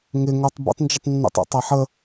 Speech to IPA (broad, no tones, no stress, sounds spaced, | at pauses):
ŋ ɪ ŋ o tˤ b ə̰ tˤ n d͡ʒ ə tˤ nː ṵ tˤ ṵ tˤ a ħ ə